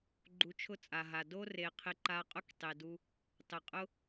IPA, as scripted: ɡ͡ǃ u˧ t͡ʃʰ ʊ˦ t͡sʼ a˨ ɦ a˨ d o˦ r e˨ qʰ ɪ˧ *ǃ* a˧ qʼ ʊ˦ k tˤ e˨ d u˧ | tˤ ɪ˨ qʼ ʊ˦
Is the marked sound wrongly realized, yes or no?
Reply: no